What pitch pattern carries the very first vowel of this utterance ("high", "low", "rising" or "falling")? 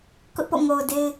high